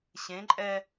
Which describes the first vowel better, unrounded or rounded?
unrounded